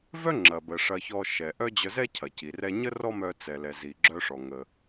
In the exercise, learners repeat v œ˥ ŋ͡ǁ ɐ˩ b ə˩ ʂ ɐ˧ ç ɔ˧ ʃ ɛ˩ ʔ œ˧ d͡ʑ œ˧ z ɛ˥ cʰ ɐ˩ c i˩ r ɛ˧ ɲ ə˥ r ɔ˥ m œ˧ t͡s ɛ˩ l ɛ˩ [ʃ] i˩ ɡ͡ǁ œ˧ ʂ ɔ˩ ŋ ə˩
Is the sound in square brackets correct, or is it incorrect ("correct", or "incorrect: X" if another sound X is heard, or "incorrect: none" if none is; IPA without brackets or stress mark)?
incorrect: z